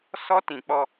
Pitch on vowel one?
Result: high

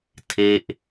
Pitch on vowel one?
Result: falling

